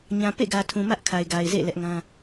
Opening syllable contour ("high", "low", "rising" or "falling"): low